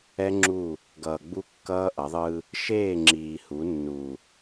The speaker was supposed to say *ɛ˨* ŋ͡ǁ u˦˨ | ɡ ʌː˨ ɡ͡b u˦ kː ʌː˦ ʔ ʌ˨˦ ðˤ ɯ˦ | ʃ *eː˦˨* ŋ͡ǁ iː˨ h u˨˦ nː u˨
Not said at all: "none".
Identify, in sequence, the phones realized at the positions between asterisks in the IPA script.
ɛ˦, eː˦˨

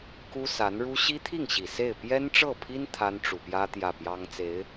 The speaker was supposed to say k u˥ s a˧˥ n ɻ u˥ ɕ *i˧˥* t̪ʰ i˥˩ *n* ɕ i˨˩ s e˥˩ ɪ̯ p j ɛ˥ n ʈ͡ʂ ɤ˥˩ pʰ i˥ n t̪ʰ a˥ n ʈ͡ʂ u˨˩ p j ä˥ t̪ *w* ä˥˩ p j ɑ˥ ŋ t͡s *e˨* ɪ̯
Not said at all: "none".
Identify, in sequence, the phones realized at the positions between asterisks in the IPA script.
i˥, ŋ, j, e˧˥

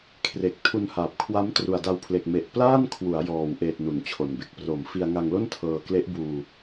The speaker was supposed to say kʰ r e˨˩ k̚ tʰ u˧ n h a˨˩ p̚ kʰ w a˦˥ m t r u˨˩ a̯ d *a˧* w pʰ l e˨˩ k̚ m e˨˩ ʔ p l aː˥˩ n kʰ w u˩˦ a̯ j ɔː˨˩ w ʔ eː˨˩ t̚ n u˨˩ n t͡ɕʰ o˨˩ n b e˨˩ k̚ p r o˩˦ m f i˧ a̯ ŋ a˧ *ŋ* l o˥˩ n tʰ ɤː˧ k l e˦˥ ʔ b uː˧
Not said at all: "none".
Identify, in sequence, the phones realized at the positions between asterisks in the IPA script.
a˧, ŋ

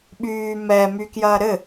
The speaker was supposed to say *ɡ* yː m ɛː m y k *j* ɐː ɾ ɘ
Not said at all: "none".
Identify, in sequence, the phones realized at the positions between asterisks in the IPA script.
ɓ, j

